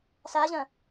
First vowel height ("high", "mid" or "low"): low